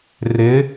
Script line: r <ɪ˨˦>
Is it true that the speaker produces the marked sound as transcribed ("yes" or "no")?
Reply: yes